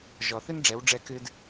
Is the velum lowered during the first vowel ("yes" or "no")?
no